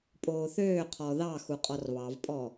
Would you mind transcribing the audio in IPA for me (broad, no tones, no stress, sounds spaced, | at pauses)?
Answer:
pʼ oː θ øː qʰ ɔ ð ɑ x u qʼ ɔ r β ɑ v pʼ ɔ